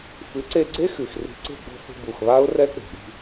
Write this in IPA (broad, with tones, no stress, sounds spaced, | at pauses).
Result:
f ɨ˩˥ ǀ e˧ ɡ͡ǀ e˦˥ x ɨ˨˩ x r i̤˧ ǀ e̤˥˧ ɡ͡b ɔ̤˥˧ f e̤˥˧ b u˨˩ x β a˦˥ ʊ̯ r ɛ˦˥ k͡p e̤˨˩ ɗ i̤˧